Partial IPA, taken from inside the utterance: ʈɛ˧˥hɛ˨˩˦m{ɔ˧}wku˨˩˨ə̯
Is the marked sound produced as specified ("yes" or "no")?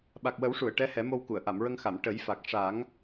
no